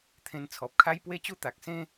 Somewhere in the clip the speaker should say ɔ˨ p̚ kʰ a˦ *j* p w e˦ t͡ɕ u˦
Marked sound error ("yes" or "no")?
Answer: no